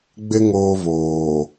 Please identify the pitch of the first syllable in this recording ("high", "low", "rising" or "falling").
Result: high